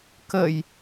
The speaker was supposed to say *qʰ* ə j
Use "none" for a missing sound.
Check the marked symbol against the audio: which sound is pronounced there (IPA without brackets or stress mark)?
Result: k